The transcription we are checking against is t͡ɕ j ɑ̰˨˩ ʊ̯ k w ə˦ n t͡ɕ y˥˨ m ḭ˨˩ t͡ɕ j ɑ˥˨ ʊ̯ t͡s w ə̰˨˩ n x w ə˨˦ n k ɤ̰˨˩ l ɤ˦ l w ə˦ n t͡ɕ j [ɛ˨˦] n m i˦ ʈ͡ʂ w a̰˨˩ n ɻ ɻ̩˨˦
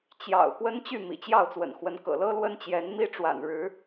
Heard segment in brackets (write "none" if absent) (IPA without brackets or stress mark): ɛ˨˦